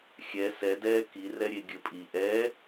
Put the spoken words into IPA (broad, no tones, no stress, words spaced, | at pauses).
xʲɛ sɛdɛː kirɛɾʲe ɡʲɘpʼi ʔɛ